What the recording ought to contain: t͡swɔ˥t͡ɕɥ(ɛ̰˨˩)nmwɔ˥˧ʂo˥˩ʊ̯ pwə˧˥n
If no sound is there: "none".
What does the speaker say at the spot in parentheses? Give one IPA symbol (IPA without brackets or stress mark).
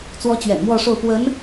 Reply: ɛ̰˨˩